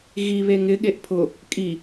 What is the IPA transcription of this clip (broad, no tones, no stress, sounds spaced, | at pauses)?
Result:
ɣ i β e ŋ ɪ ɠ e ʔ pʰ ʊ | kʼ i